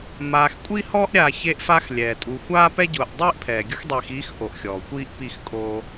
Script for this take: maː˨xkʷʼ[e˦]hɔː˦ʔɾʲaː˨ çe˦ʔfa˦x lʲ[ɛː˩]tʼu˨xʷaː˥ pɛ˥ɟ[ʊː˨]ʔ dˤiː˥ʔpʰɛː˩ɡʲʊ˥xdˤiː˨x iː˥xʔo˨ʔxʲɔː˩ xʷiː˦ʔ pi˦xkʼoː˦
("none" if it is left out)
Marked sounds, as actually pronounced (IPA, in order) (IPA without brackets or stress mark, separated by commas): i˦, ɛː˩, ʊː˨